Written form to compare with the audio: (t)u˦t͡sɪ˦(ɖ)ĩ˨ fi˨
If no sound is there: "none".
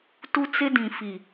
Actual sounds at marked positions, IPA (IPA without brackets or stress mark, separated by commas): t, d